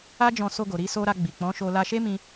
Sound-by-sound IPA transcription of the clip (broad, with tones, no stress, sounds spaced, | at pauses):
a˦ d͡ʒ ɔ̃˧ s o˧ ɡ o˨ ɾ i˧ s o˧ ɾ a˧ ɡ͡b i˨ k͡p ɔ̃˨˦ ʃ o˧ l a˧ ʃ e˦ m ĩ˧